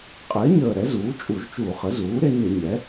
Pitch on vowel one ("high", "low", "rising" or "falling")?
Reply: rising